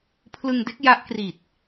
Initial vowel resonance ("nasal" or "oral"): oral